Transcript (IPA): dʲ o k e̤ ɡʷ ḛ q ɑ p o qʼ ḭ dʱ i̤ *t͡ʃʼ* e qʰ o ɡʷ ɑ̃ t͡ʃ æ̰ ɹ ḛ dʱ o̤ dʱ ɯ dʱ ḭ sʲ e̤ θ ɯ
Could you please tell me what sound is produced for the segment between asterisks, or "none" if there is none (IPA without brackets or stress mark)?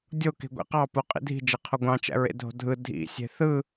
d͡ʒ